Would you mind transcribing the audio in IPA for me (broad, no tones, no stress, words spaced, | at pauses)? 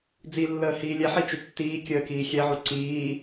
d͡zilːəː hiːlʲɛħi t͡ʃʏtːiːkʲəː kiːxʲɛʕu ǀiː